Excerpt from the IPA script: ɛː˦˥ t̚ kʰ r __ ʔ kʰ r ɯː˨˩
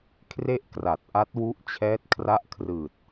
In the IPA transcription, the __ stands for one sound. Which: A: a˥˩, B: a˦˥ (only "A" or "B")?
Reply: B